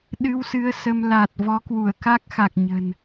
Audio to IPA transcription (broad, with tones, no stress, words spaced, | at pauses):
ɗɨ˧wsɨ˨˦ə̯ sə˧m la˨˩t̚ vɔ˨˦kwu˧˩ə̯ ka˦˥k̚xa˨˩k̚ ɲə̤˨˩n